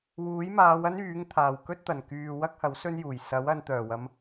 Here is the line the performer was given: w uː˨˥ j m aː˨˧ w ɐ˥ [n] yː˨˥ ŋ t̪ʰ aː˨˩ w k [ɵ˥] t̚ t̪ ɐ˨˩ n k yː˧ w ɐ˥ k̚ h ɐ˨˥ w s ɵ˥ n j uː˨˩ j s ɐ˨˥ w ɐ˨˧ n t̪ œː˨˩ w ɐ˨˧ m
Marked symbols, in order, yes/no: yes, yes

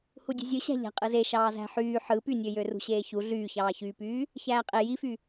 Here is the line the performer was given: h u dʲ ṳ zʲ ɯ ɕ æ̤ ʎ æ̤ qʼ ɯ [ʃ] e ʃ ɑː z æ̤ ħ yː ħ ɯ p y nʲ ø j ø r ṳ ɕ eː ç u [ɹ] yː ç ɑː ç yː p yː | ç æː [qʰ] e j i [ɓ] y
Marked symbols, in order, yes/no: no, no, no, no

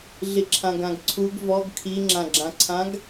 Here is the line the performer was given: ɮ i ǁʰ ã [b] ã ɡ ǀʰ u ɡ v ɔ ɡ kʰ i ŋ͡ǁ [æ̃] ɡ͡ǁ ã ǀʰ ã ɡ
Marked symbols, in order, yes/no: no, no

